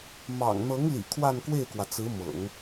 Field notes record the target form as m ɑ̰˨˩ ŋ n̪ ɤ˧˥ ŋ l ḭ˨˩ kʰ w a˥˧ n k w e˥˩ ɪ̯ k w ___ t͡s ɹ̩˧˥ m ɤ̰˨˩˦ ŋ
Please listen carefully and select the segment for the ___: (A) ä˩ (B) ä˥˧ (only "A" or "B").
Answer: A